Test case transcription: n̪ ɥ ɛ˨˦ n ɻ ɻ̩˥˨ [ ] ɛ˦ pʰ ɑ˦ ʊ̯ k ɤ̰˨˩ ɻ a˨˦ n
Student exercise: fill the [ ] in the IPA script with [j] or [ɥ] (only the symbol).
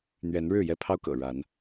j